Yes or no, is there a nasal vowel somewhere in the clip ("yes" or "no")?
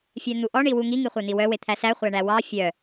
no